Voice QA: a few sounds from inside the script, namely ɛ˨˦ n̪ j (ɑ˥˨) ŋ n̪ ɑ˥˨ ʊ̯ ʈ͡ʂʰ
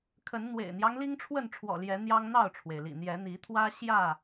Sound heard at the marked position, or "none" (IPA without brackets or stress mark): ɑ˦